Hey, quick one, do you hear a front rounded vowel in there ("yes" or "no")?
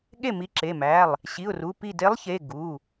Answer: no